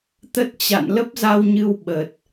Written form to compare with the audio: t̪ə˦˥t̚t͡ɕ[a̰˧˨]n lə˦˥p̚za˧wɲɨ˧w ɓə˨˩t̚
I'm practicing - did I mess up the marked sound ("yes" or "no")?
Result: no